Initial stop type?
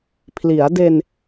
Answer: aspirated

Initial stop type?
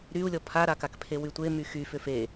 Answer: aspirated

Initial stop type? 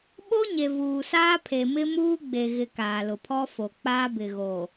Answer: implosive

